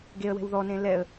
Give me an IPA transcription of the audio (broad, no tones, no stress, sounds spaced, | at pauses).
ɡ e ə̯ w ɛ̤ w ð ɔ n ẽ l ɛ ə̯